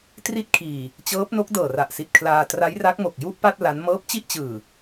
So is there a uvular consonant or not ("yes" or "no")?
no